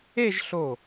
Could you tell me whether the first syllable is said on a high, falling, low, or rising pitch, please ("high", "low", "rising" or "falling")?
falling